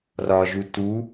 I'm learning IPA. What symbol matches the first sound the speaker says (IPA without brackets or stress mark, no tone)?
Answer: r